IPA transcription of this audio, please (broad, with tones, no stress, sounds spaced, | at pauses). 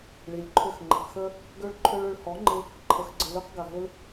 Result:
ɭ i˨ lʲ ǃʰ ʏ˦˨ x ŋ͡ǃ ə˨ q x ə˦ | ɡ ø˦ ɭ ǃʰ ø˦ ɭ ʏ˧ ɭ h ɔ˨˦ ŋ͡ǃ ɪ˧ | ǃʰ ə˧ x ɡ͡ǀ ə˧ l ø˦ q ɡ a˨ ɦ ɪ˦ l